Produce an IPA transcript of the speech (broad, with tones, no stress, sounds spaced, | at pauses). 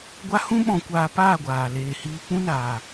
ɡʷ a˦ h ũ˦ ɓ ɔ̃˧ kʷ aː˧ p aː˦˨ ɡʷ aː˨ l eː˨ h iː˧ k͡p ũ˦ n aː˨